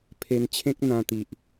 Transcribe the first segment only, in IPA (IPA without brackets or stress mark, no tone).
pʰ